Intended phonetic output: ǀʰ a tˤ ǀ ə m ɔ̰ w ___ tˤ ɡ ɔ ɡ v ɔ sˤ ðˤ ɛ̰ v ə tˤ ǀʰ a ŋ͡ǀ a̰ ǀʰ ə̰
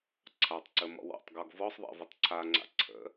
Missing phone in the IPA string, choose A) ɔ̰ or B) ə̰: A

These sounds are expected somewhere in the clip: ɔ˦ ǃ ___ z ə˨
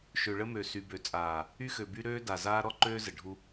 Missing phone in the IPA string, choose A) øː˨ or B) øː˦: B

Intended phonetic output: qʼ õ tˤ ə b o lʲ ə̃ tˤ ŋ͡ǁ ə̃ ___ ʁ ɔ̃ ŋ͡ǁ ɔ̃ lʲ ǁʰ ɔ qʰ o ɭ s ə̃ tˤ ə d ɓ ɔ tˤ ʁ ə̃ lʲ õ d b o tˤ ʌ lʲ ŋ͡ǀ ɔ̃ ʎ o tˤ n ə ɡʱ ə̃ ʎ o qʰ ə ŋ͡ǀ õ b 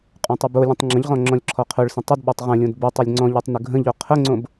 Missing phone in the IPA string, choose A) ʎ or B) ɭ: A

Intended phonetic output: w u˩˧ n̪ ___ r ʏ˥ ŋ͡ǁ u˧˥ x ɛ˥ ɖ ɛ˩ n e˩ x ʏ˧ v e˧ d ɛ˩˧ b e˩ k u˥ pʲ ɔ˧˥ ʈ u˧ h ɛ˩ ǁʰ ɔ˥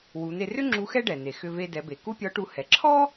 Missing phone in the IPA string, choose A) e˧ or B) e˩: A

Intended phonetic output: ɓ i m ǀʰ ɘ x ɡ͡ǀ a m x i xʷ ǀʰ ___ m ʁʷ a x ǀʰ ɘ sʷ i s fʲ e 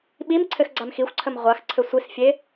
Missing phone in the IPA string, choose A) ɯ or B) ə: B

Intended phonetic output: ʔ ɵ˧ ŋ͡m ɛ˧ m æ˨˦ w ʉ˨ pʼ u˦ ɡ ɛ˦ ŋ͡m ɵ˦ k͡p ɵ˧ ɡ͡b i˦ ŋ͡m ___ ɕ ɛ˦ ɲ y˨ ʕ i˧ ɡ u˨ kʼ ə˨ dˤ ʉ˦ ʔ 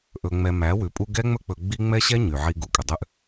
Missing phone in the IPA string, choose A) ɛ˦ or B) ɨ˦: A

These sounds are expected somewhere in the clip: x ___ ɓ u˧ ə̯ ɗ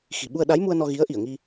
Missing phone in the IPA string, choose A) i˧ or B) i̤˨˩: B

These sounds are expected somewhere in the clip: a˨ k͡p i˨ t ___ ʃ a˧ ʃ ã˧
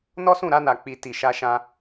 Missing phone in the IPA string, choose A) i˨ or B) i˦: A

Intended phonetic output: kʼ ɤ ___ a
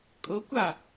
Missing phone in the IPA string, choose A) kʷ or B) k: A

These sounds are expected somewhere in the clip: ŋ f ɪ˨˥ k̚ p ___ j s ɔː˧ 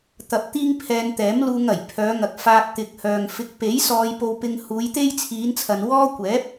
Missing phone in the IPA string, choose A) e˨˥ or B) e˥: A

